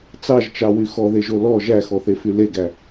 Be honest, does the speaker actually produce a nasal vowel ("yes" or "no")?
no